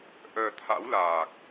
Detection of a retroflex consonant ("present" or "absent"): absent